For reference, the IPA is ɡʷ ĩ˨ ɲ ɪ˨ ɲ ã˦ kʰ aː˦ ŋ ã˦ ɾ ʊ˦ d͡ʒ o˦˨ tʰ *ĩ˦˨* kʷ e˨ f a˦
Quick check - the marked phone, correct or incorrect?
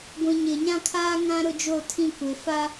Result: correct